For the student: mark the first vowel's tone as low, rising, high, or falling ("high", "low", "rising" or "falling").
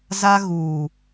high